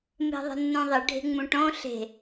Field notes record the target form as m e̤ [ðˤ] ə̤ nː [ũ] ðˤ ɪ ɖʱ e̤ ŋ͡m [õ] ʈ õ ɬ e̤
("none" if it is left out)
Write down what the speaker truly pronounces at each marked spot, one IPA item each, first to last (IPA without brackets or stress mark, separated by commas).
ðˤ, ũ, ũ